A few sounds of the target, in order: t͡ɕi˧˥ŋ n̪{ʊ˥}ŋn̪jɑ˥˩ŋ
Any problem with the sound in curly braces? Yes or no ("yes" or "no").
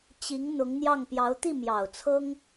yes